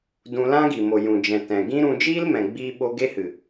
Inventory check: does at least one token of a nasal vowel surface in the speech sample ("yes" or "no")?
yes